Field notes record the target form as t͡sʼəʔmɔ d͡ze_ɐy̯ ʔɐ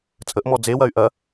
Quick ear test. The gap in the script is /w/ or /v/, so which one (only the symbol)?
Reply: w